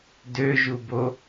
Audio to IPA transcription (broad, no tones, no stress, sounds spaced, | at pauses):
d ø ʒ u b o